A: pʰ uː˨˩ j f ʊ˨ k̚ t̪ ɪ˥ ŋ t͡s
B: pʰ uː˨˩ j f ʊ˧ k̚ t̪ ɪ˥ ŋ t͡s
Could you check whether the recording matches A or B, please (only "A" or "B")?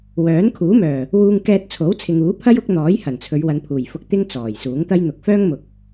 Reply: B